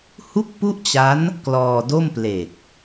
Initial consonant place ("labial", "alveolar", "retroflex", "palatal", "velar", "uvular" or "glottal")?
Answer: glottal